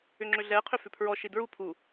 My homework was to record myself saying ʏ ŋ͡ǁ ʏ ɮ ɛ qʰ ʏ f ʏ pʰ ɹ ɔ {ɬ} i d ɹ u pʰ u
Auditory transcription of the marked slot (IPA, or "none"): ʃ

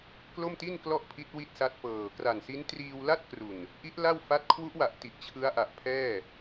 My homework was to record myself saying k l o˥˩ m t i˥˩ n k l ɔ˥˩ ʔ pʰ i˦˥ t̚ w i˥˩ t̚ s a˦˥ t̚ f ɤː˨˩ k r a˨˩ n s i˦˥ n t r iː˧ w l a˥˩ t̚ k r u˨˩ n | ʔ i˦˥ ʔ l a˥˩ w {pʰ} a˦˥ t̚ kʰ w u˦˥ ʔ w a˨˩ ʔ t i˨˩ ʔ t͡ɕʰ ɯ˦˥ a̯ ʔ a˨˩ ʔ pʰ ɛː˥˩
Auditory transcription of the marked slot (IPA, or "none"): f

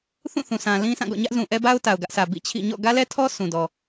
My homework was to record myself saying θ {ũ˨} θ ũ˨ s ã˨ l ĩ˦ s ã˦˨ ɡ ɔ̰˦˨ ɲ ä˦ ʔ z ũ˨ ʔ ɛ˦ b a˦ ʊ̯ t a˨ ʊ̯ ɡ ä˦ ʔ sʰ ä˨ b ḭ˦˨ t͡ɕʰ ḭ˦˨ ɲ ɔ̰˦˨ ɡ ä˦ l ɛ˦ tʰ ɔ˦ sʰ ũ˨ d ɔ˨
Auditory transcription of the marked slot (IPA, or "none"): ũ˦˨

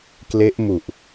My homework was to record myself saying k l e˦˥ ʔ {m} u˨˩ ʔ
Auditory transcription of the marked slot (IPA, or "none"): m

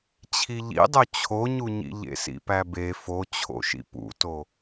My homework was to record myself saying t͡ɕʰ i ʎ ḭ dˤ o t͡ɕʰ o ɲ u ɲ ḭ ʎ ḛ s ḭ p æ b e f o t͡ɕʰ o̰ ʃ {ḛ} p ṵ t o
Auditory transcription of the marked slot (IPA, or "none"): ḭ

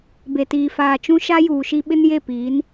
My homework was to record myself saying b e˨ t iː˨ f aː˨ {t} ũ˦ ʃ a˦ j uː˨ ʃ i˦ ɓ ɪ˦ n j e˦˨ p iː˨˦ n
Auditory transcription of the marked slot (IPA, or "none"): t͡ʃ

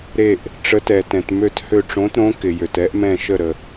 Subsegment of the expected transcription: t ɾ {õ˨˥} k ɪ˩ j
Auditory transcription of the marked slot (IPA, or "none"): õ˨˥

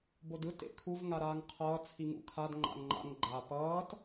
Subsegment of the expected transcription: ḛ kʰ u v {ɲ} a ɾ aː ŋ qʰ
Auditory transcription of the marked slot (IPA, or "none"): ŋ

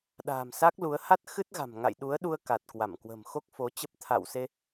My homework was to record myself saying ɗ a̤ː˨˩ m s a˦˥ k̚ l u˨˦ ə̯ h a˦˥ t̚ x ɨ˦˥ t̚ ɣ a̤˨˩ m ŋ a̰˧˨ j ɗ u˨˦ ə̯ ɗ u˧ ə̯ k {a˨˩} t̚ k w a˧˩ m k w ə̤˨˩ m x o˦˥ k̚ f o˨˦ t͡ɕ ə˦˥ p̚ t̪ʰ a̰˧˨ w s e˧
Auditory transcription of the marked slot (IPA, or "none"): a˨˩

